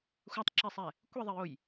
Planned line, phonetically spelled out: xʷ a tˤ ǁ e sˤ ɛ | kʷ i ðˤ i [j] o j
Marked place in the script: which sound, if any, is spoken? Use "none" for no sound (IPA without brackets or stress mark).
j